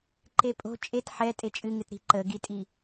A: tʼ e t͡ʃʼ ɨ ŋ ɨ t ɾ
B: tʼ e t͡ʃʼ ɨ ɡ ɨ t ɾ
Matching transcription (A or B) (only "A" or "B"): A